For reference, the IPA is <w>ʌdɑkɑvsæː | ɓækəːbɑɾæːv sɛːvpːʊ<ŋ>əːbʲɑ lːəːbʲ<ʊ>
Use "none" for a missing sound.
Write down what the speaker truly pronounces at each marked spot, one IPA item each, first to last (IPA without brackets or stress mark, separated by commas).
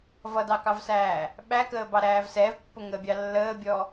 v, ŋ, ɔ